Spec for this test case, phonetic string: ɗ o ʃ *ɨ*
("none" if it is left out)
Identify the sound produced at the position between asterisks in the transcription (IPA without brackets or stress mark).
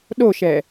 ɛ